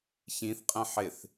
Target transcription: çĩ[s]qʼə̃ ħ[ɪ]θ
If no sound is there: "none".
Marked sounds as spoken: θ, ɪ

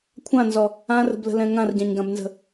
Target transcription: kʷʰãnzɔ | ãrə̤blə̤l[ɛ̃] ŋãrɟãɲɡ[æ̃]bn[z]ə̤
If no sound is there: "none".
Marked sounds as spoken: ɛ̃, ã, z

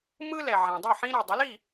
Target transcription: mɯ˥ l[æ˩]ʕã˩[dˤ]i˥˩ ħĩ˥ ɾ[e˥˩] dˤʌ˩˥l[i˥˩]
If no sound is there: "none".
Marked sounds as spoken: ɛ˩, dˤ, e˩, i˥˩

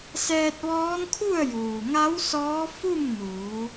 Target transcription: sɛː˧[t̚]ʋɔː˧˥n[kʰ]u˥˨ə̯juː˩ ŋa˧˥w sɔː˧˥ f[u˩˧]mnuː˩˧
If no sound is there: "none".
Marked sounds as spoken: t̚, kʰ, u˥˨

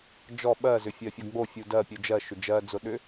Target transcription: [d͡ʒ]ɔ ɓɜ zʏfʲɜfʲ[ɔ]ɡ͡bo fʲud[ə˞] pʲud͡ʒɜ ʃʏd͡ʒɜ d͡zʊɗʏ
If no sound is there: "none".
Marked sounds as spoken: d͡ʒ, ɔ, ɜ

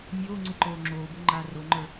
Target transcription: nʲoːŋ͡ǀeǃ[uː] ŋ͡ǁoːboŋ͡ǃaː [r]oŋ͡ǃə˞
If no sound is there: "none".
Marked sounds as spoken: oː, r

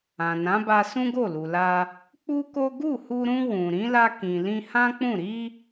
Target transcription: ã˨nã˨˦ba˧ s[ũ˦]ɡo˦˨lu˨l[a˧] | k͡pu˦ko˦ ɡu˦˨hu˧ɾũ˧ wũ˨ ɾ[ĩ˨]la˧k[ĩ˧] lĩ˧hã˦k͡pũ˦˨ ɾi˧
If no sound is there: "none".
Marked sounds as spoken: ũ˦, a˧, ĩ˨˦, ĩ˨

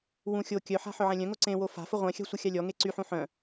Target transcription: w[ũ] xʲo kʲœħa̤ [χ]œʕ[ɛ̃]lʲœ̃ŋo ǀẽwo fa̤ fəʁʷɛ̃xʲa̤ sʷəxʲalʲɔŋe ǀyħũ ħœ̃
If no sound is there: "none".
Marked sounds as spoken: ũ, ħ, ɛ̃

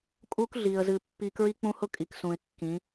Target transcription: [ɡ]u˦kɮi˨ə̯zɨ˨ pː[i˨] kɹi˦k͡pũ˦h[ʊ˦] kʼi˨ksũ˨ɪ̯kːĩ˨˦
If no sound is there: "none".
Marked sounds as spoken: kʼ, i˨, ʊ˦

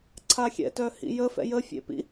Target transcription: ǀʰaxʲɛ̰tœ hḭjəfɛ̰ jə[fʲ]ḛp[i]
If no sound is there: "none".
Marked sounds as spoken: fʲ, ḭ

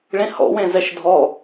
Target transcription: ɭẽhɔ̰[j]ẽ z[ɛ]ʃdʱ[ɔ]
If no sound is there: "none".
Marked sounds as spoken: w, ɛ, ɔ

